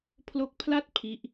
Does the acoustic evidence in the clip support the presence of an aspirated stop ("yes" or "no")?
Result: yes